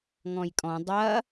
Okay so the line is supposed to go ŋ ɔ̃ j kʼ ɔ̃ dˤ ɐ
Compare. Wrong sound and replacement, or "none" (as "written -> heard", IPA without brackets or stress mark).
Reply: none